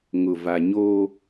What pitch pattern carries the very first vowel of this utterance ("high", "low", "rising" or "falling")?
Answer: low